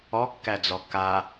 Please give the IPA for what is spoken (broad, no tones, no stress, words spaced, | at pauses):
ɔkːæd͡zɔ ka